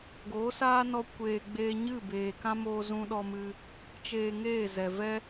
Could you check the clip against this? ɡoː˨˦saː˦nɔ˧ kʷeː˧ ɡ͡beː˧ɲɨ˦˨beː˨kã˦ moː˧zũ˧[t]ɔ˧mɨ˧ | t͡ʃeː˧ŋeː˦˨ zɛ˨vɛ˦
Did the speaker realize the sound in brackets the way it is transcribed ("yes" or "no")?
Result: no